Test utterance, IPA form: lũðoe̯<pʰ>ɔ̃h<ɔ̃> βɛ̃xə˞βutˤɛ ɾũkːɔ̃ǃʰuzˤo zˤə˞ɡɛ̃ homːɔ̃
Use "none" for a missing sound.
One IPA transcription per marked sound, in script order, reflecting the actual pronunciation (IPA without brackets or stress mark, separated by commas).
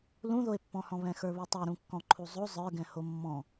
pː, ɔ̃